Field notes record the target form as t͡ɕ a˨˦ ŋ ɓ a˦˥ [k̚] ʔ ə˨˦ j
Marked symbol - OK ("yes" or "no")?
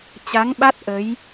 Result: no